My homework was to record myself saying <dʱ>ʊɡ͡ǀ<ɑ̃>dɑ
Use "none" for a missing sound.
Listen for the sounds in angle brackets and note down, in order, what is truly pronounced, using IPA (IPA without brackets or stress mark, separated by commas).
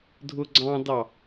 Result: dʱ, ɑ̃